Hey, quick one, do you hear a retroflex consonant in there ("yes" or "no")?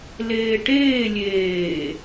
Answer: yes